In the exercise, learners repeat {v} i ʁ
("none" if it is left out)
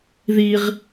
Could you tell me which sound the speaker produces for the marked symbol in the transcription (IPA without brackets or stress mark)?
ð